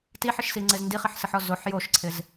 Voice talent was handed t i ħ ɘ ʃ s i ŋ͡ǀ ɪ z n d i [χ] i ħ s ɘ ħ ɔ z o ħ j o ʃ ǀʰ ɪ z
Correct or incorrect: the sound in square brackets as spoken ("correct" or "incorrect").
correct